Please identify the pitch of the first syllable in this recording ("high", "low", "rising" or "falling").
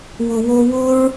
low